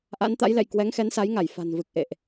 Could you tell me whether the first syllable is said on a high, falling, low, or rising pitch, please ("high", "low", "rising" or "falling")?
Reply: rising